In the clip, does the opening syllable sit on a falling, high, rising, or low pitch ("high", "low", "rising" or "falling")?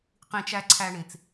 low